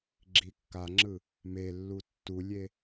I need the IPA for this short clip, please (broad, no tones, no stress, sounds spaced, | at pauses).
ɡ͡ǁ i kː a ŋ͡ǁ ɯ | m e lː u tː u lʲ e